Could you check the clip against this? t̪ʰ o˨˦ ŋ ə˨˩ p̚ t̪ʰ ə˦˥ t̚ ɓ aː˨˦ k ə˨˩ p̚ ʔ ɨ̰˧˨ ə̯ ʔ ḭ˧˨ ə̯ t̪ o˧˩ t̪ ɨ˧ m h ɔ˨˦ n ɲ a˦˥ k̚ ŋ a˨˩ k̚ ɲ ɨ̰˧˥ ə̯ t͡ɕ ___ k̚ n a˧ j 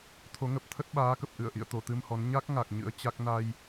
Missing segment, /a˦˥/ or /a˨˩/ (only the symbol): a˦˥